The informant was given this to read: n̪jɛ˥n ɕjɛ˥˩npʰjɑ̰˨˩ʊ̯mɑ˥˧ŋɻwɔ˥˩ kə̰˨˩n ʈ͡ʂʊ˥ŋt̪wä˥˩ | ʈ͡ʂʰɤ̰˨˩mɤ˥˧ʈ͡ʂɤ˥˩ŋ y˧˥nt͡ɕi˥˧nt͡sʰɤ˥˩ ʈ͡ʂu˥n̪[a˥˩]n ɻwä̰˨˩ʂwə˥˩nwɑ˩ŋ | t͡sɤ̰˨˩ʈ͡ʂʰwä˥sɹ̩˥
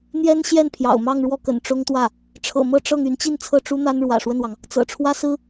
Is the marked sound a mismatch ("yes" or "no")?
yes